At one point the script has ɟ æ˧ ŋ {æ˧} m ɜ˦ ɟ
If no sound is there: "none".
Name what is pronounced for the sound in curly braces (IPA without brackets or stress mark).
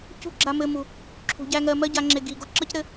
ɜ˧